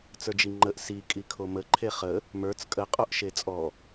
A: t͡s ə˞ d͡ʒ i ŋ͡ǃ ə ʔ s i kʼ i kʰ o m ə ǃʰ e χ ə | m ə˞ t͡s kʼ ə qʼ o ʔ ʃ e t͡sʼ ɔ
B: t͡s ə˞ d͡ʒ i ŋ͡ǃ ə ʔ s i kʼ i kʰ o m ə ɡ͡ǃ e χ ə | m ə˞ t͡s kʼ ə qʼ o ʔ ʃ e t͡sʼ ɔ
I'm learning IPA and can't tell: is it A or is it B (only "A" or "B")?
A